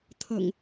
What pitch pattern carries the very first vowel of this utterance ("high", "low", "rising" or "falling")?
low